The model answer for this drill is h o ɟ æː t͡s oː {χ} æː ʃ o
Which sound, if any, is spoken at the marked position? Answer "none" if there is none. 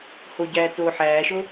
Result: ħ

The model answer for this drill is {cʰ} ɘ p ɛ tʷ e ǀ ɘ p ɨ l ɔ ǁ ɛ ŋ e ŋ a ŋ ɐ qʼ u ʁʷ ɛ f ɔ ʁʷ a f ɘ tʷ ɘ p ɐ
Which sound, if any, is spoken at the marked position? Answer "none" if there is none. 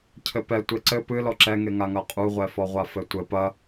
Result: cʰ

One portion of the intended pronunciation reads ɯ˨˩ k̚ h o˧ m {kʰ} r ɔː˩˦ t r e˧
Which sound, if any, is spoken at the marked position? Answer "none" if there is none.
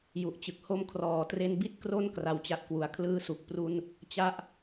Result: kʰ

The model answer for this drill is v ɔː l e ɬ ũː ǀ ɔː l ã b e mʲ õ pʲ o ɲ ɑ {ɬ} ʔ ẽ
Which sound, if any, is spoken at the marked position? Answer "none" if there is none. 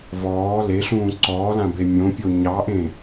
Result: none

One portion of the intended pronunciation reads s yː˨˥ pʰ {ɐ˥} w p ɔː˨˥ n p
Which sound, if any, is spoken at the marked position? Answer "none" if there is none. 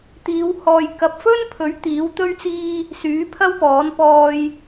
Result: ɐ˥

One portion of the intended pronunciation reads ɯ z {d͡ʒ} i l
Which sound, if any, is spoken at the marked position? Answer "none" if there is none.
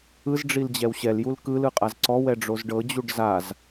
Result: ɖ͡ʐ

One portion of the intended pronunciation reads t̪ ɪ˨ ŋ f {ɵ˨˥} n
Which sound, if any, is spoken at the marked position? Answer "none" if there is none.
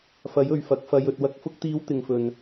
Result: ɵ˨˩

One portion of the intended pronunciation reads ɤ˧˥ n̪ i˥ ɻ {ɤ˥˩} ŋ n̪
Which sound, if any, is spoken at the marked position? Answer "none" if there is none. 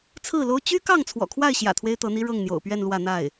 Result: ɤ˥˩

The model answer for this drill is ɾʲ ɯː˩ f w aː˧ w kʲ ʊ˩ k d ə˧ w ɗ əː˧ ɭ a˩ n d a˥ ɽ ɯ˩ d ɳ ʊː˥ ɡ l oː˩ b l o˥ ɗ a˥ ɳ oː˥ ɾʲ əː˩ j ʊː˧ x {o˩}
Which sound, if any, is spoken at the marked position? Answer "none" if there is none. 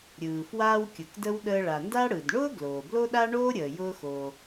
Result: o˩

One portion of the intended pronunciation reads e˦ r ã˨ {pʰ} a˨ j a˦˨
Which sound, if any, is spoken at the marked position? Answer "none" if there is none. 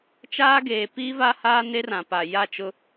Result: p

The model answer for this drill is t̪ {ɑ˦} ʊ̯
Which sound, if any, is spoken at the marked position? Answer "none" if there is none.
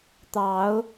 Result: ɑ˨˦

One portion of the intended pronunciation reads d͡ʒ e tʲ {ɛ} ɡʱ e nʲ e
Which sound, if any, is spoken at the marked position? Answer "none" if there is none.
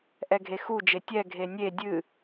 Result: ɛ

